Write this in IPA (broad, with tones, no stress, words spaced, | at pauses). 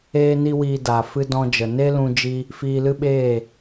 eː˦ni˦wiː˧daː˨ fɨ˧ dɔ̃˧d͡ʒə˨ ne˦lũ˧d͡ʒi˧ | fiː˧lɨ˦ɓeː˦˨